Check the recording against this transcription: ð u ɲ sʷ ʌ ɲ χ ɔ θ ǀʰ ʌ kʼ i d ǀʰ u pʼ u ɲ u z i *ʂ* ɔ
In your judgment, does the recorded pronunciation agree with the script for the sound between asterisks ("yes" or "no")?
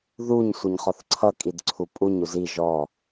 no